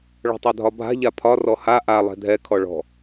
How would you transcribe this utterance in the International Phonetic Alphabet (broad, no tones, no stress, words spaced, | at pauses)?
ɭɔ̤tˤadʱɒbʱa̤ ʎapʰɒ rɔha ʔa lˠɛ̤dʱɛ kʰɔɭɔ̤